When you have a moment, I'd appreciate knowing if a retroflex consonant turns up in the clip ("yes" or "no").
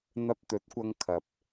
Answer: no